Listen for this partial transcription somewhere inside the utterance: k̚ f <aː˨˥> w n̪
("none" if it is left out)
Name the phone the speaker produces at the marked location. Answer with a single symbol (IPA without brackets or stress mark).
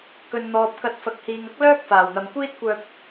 aː˨˩